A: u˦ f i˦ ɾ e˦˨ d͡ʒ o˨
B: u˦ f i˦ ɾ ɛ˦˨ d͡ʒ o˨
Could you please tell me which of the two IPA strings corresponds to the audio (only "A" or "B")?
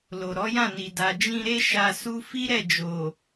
B